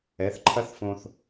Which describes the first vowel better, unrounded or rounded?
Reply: unrounded